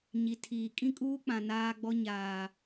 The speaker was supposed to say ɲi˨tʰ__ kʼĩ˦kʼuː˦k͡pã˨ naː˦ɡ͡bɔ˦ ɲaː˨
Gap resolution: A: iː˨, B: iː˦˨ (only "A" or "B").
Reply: A